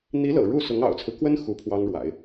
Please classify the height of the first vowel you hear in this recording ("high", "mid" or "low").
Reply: high